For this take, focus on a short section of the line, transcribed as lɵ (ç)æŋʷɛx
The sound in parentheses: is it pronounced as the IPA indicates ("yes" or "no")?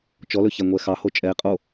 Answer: yes